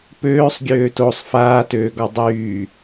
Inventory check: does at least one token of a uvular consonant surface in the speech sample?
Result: no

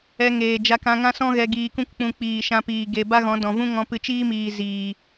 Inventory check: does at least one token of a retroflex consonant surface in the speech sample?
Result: no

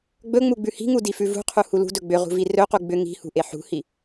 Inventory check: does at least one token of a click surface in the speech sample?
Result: no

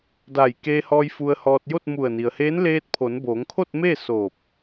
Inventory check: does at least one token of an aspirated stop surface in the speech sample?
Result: yes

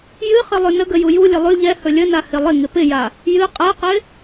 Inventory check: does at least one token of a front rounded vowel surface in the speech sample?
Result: no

